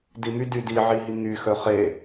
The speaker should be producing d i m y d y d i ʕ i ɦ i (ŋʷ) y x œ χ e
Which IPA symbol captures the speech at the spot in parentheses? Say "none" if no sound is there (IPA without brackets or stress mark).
ŋ